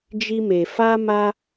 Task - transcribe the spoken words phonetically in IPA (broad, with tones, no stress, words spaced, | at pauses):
d͡ʒi˦me˧ fa˦ma˦